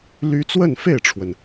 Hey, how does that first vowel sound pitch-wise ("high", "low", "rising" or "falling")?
high